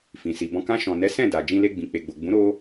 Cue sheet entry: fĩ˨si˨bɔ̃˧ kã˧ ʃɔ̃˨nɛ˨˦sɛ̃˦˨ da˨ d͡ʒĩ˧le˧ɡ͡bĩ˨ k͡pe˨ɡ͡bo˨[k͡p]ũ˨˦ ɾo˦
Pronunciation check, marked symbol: incorrect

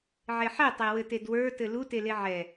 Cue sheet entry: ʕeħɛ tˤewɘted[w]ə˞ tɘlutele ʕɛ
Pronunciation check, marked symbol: correct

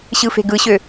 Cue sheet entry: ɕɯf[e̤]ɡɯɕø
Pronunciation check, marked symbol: correct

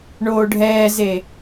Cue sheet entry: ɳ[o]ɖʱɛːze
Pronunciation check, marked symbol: incorrect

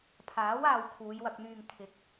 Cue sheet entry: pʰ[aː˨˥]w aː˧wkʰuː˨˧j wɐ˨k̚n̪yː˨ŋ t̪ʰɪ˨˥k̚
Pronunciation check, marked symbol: correct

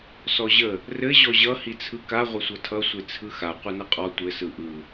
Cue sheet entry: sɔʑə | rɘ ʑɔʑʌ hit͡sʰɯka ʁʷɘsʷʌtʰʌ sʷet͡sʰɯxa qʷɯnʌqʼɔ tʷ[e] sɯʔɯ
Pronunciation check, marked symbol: incorrect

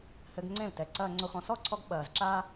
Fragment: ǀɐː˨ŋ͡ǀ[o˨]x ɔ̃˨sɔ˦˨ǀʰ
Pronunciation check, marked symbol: correct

